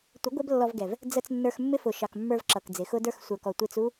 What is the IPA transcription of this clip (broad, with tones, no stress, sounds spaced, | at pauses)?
tʷ ɪ˨˦ ɡʷ ɛ˦ b lː ɔ˧ v ɡ ɛ˨ v | d͡z ə˧ t͡s nː ə˞˧ x mː ɪ˦ f ʊ˨ ʃ ɑ˨ k mː ə˞˧ v ǁ ʌ˨ k d͡z ɪ˨ x ʊ˦ d ə˞˦ x sʷ ə˞˨ k ɔ˨ tʷ i˧ t͡s u˦